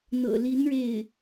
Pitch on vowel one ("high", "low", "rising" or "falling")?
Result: low